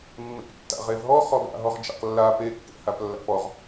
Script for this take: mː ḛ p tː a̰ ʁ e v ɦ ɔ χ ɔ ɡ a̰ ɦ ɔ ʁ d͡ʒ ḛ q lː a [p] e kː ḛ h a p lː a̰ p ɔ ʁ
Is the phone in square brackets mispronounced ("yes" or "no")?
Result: no